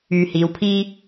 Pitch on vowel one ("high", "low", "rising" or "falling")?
low